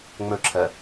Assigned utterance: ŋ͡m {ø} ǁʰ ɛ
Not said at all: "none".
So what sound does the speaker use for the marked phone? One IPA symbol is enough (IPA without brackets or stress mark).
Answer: ø